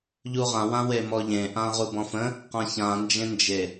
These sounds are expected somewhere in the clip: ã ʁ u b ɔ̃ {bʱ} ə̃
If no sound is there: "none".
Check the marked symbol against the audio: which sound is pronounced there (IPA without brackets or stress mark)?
f